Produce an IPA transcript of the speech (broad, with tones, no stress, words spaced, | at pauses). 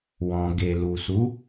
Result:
wɔ̃˨ ɡe˨lu˨su˨˦